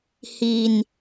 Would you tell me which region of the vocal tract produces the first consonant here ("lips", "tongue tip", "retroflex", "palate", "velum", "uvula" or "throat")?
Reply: throat